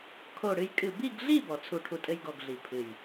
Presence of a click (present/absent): absent